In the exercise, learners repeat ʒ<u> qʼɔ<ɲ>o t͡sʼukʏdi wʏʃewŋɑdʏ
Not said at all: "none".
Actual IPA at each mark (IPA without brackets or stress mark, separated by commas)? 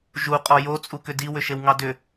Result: u, j